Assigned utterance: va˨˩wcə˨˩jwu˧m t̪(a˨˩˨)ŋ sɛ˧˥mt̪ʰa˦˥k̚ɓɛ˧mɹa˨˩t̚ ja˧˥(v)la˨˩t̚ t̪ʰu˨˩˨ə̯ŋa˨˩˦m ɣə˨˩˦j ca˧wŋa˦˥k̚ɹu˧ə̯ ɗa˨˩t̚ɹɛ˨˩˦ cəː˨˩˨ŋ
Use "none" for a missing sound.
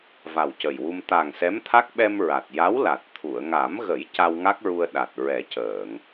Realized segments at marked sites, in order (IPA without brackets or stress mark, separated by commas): a˨˩, w